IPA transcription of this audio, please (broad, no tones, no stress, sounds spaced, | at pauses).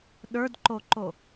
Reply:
ɗ ə˞ d ǃ o ǃ o